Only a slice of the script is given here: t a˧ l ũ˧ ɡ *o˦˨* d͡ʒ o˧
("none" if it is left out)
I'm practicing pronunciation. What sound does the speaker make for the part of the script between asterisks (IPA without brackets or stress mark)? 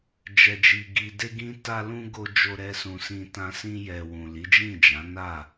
o˧